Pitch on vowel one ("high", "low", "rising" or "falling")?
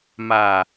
low